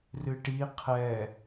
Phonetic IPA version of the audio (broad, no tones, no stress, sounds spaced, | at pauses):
r ɨ ʈ i qʰ ɛ